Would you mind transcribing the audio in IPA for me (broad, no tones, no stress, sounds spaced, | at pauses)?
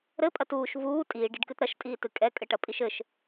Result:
ɾ ɘ pʼ ɐ t uː ʃ v uː tʼ iː ɖ i ɖ k ɨ t ɾ ɐ ʃ tʼ iː t ɨ kʼ ɛ kʼ ɘ ʈ ɐ pʼ i ʃ ɘ ʃ